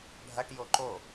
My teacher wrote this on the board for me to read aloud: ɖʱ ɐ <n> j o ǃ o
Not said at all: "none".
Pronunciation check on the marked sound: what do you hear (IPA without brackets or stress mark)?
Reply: ʈ